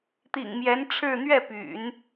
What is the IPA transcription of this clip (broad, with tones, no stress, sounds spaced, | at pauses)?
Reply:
t̪ ḭ˨˩ ŋ m j ɛ˧˥ n ʈ͡ʂʰ ɻ̩˥˧ n̪ ɥ ɛ˥˩ p y̰˨˩˦ n